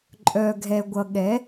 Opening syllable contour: low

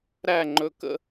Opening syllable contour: falling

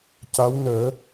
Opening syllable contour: rising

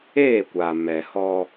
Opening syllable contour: falling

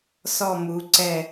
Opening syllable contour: falling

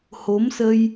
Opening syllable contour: rising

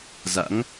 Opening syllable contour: rising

